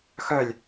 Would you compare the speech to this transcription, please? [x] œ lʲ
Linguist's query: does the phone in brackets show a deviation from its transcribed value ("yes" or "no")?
no